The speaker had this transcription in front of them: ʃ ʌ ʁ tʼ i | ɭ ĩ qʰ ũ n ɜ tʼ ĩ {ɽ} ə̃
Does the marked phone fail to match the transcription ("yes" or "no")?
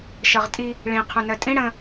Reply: no